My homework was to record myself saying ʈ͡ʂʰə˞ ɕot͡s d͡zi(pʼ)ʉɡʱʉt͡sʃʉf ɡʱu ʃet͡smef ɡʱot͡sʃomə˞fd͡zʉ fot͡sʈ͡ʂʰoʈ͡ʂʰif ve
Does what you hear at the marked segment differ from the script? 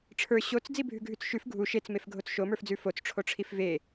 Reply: yes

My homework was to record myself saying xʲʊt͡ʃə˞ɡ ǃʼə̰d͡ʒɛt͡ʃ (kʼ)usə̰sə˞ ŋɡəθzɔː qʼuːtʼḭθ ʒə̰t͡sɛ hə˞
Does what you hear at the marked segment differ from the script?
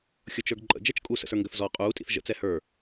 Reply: no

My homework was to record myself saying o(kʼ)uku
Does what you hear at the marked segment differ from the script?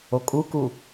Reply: no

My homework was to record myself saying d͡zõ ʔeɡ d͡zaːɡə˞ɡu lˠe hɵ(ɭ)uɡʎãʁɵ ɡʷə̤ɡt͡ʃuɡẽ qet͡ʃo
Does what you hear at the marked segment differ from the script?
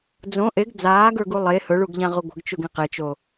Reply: no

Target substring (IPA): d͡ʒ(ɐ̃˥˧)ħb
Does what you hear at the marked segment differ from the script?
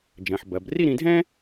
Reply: yes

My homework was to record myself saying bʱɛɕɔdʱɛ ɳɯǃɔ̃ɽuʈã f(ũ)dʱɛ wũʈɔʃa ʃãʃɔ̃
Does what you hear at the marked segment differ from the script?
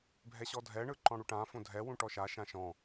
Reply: yes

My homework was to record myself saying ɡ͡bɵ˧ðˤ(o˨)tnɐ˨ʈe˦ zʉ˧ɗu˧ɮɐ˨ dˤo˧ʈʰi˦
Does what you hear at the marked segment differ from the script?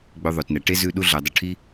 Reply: no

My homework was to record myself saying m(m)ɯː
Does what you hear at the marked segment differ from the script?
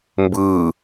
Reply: yes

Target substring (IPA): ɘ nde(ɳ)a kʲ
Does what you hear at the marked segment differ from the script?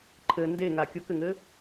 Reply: yes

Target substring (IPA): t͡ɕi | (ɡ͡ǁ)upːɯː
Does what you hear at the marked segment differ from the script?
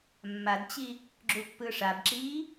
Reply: no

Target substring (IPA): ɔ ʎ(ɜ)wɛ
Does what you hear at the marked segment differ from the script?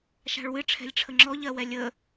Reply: no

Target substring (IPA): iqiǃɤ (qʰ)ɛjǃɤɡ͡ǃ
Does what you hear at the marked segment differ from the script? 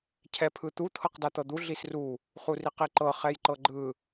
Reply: yes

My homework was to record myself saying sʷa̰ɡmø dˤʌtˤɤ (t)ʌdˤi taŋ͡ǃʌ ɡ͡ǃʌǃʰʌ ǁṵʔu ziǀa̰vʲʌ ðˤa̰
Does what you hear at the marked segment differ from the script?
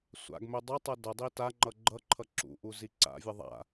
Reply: yes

